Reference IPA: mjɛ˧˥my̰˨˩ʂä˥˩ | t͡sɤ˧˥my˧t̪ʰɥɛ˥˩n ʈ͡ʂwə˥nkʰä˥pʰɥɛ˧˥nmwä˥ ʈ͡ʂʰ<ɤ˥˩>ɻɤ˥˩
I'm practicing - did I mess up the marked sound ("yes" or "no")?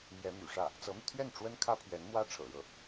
yes